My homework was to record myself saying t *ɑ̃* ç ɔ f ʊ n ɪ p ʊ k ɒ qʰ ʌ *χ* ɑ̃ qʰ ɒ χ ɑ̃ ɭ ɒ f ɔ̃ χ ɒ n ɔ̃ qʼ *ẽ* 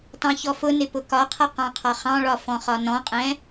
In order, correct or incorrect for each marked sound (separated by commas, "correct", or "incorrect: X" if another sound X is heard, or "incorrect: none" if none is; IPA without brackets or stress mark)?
correct, incorrect: q, incorrect: ɛ̃